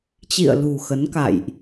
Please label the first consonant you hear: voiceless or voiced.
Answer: voiceless